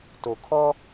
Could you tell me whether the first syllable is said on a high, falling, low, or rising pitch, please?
low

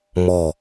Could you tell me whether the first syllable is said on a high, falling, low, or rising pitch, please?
falling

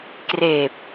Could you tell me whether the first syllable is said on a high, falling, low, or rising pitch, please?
low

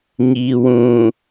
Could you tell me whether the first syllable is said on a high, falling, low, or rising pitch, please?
low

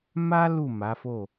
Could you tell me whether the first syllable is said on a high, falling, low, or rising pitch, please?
high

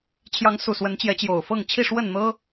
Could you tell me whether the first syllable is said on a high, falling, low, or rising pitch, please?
rising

